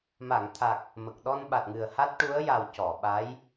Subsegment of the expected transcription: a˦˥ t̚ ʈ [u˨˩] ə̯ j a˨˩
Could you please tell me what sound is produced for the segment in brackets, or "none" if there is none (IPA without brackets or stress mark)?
u˧˥